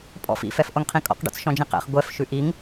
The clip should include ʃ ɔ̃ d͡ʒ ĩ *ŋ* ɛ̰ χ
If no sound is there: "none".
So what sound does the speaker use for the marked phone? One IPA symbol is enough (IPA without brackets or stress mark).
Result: q